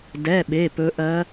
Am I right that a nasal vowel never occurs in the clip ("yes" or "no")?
yes